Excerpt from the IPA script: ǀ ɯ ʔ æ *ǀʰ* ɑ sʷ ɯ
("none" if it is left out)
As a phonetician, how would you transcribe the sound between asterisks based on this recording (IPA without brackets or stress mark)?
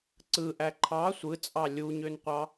ǃʰ